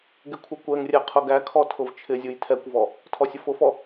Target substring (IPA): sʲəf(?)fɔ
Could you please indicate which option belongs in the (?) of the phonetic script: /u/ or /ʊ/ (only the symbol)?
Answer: ʊ